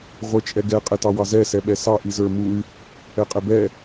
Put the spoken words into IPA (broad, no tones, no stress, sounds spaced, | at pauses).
ʁʷ ə˞ t͡ʃʼ ɛ ɡ ɛ qʼ ɛ t ɑ w ɑ z ɛ s ɛ ɓ ɛ s ɑ ʔ i z ə˞ m u y̯ | ɛ qʼ ɛ b ɛ